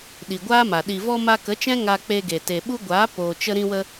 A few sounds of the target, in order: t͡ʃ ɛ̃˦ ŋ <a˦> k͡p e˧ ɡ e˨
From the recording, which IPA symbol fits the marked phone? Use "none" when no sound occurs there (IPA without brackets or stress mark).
a˧